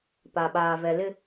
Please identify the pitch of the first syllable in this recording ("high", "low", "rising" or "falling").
low